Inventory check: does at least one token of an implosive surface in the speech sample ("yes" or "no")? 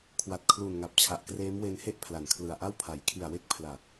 no